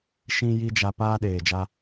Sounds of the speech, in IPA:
ʃĩ˦ ji˦d͡ʒa˧paː˦ ɗeː˨d͡ʒa˦

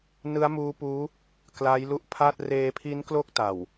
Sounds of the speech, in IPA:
nɯ˦˥a̯muː˦˥puː˦˥ | kla˦˥jlu˦˥ʔ pʰa˥˩t̚ reː˧pʰi˦˥nklo˦˥k̚ ta˨˩w

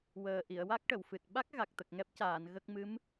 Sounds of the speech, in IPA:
wəː˨˩ ʔi˨˩˨ə̯wa˦˥k̚ʈə˨˩˨wfɨ˨˩t̚ ɓa˦˥k̚ ɣa˨˩k̚t̪ə˨˩k̚ŋɛ˦˥p̚caː˨˩˨n ɣə˦˥k̚ mɨ˧˥m

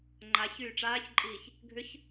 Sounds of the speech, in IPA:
ŋ͡ǃaç yːʈ͡ʂaːçǃʼiːç | ɡʱʏç

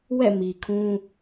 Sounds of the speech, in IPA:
wɛ̰˦˨mi˨kʰũ˦

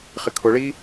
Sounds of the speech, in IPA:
χɪkʰʊɭi

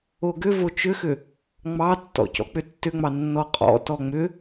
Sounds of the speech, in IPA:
oɡʏvo t͡ʃʏxʏ | ŋ͡mɑtːɔ̰ cɔ̰k͡pʏtːʏŋ͡mɑ nːɔqʼɔ̰tɔ ŋ͡mʏ

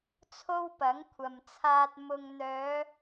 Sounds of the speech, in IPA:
t͡sʰo˥wpɐ˨˥ŋkʷʰɐ˨mt͡sʰaː˧t̚ mʊ˨ŋn̪œː˨˧

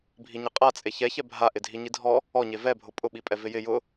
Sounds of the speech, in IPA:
bʱiɲɪqʼa t͡sʼeçɛ çɛbʱaʔɪ dʱiɲidʱɔ | ɔɲe vɛbʱʊ pʼʊɓipʼɛ vɪjɪ jʊ

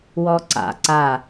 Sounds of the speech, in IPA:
wɔǀa̰ ǀa

